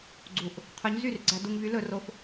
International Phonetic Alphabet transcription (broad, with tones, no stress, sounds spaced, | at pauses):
ɡ͡ǀ u˧˩ ʔ | qʰ œ˧˥ ɲ z y˥˩ r ɡ͡ǀ æ˧ d u˧ ŋ v y˧˥ l ɵ˧ r o˧ f